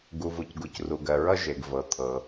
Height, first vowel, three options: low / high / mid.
high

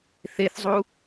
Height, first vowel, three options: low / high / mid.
mid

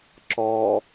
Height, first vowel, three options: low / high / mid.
mid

